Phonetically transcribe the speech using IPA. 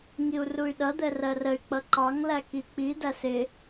ŋiu̯ruy̯ɗʌ d̪ɛrɜrəy̯ k͡pʌǃɑŋ lækik͡pi dæsɪ

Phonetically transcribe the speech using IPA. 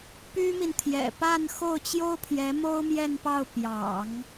py˥mi˨n t̪ʰjɛ̰˨˩pa˥˧n xo˥˩ʊ̯t͡ɕjo˥ʊ̯pʰjɛ˧˥ mo˥ʊ̯mjɛ˥˧npɑ˥˩ʊ̯ pjɑ̰˨˩˦ŋ

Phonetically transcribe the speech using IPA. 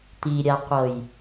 t̪iɾʲaqʷɤj

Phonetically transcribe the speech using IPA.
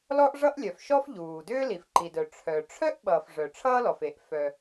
lɔ˥ʔʐʌ˥ʔlʲœ˩fʃɔ˥f ʎuː˩dʏː˥ li˩fǃi˩dœ˩ ʈ͡ʂʰœ˩ ʈ͡ʂʰœ˥ʔɓʌː˩f ʐœ˩ʈ͡ʂʰʌː˥lɔ˩fe˩ʔ fœ˩

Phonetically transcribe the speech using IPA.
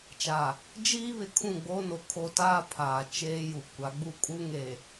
t͡ʃa˨ | d͡ʒiː˦βɪ˨ kʰũ˦˨ɡ͡boː˦no˨ kʰo˦ taː˦pʰaː˨ t͡ʃeː˦ju˨ kʷa˨˦ ɡ͡bu˦kʼu˦ ŋe˨

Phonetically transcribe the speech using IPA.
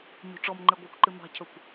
ɲo̤ʈ͡ʂɔmŋ͡ǃe ɡʷakʷǃɨ mɑ̤cʰɵkʷ

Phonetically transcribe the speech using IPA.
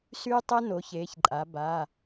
syː˦tˤɛ˦ no˩˧çeː˩˧çǃʼa˩˧ ba˩˧˩

